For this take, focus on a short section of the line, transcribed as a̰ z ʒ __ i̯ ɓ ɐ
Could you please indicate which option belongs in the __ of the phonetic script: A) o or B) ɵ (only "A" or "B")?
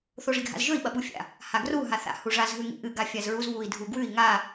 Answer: B